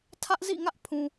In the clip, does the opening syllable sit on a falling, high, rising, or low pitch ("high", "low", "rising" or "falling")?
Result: high